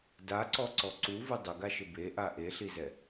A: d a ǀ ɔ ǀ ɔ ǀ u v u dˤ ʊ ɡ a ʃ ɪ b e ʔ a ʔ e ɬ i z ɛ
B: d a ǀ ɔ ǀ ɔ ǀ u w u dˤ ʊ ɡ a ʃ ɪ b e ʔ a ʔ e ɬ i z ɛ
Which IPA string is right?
A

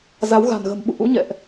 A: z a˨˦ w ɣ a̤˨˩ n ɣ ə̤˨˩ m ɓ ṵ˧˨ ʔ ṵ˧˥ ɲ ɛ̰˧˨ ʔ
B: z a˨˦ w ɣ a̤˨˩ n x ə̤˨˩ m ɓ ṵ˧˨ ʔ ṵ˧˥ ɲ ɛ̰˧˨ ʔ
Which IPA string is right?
A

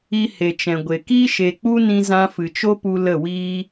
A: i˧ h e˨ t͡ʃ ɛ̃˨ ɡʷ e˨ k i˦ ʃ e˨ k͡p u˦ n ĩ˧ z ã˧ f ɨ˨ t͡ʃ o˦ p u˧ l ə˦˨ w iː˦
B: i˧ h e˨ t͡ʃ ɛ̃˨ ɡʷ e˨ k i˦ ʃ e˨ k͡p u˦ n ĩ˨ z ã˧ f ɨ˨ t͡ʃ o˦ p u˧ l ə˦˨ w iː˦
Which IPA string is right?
A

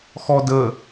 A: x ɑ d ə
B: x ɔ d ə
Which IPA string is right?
B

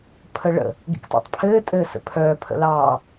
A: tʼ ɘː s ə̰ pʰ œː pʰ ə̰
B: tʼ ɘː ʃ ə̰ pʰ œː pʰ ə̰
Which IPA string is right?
A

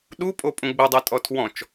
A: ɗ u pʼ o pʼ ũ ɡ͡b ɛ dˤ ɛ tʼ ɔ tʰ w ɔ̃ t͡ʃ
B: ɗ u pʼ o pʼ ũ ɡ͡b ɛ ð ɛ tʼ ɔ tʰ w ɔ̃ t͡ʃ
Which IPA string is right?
A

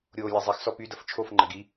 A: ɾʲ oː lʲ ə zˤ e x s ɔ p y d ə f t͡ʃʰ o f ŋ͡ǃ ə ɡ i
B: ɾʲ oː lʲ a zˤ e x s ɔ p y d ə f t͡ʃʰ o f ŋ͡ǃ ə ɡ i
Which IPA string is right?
B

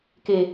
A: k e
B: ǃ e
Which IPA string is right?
A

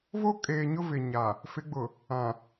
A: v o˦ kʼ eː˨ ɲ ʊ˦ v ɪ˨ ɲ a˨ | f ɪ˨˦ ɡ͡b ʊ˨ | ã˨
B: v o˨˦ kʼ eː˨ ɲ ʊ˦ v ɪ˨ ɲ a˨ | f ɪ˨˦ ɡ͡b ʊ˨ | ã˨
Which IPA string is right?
A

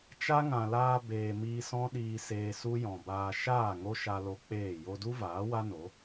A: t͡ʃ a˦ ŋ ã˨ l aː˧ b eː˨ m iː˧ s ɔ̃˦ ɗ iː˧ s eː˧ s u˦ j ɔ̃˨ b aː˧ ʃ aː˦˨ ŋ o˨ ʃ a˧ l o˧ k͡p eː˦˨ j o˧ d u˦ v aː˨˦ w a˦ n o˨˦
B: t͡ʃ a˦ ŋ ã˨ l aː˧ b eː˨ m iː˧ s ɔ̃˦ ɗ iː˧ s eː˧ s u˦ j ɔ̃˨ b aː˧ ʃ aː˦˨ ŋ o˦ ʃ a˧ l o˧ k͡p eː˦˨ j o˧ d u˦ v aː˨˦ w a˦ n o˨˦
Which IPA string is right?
B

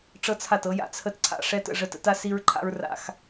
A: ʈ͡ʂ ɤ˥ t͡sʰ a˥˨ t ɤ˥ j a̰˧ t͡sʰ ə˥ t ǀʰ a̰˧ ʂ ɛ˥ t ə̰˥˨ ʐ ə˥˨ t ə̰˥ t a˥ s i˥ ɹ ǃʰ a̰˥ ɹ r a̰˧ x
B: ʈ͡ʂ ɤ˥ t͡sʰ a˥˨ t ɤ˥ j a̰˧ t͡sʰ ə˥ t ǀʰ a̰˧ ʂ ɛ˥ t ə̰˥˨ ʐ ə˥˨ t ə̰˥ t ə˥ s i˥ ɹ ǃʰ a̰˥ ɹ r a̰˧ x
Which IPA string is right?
A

